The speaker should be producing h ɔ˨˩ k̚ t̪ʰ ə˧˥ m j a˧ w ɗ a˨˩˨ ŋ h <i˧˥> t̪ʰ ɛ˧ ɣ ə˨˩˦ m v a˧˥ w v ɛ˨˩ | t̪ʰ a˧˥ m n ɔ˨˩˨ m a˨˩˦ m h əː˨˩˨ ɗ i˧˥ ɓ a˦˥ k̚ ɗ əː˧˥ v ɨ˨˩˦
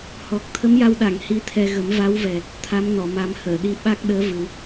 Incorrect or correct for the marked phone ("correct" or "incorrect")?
correct